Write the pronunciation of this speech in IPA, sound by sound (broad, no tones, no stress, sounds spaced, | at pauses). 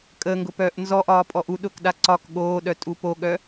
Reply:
kʼ ə ŋ ɡ ʊ p œː ʔ n z ɔ ʔ ɒː pʼ ɔ ʔ u ɗ ʊː k ɗ a ǀ ɒ k ɠ oː ɗ œ tʼ u p o ɠ œ